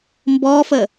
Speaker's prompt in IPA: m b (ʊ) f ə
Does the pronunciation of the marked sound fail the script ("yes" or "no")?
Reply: yes